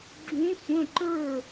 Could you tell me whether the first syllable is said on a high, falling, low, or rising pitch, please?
rising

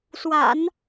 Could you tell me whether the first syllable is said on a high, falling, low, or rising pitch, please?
low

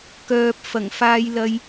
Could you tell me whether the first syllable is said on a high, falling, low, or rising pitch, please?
low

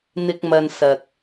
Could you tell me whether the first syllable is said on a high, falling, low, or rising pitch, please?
low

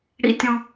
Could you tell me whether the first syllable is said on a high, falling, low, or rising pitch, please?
high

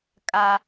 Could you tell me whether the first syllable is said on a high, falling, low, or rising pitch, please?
high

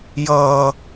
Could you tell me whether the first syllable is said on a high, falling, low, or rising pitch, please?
low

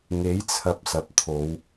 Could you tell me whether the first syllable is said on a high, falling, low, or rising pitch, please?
rising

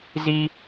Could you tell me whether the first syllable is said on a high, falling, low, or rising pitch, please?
high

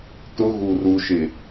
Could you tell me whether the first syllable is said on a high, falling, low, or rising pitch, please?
high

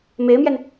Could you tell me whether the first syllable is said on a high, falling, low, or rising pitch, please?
rising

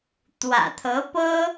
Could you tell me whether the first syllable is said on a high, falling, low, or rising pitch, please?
low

